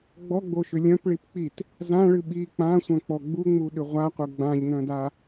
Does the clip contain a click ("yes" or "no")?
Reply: no